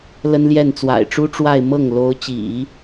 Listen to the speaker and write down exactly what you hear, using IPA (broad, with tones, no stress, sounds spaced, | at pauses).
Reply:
l ə˥ n l j ɛ˥˩ n t͡s w a̰˨˩ ɪ̯ ʈ͡ʂ u˥ ʈ͡ʂ w a˥˧ ɪ̯ m ɤ˥˩ ŋ l o˧˥ ʊ̯ t͡ɕ ḭ˨˩˦